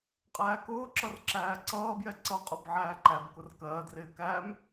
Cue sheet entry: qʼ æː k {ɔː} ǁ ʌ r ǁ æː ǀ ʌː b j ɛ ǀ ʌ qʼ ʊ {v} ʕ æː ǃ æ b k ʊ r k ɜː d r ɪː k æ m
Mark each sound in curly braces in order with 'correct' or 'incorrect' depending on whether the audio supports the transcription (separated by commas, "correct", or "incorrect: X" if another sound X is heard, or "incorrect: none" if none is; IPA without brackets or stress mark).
incorrect: ʊː, incorrect: b